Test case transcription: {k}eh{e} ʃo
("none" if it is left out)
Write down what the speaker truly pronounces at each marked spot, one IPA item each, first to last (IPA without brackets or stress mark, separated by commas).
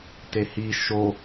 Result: t, i